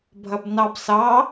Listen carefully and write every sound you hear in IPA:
bʱ ɐ b n ɑ b s ɑ

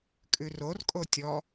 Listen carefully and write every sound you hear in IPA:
kʼ ʉ r o r kʼ o tʲ ɔ

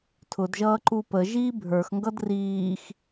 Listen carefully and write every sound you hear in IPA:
tʰ ʊ d ʒ ʌː ǃ u p ə ʒ iː bʱ ə˞ x ŋ ɡ ʌ d r iː x

